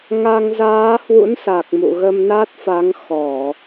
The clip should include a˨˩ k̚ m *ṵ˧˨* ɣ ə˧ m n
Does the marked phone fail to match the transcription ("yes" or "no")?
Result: no